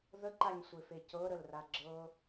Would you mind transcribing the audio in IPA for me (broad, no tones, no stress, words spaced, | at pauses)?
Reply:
ðəǃaɲsʷefe cɤɾəlra ɡ͡ǁɤ